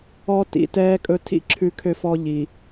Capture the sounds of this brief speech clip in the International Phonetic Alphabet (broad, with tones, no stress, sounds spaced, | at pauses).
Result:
ɔ˦ t ḭ˨ t ɛː˦ kʼ ɵ˦ tʰ ḭ˦ ǁʰ ʉ˦ kʰ ø˦ f ɔ˦ ʎ i˨